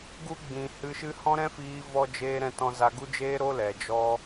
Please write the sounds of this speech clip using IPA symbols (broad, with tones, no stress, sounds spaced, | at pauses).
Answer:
ɡ u˧ ɡ͡b ĩ˨ h ɨ˧ ʃ ɨ˦ h ɔ̃˦ ɾ ɛ̃˦ f iː˧ v ɔ˧ d͡ʒ eː˧ ɾ ɛ̃˧ t ɔ̃˧ z a˧ ɡ u˦ d͡ʒ eː˦ ɾ o˦ l ɛ˨ d͡ʒ ɔ˧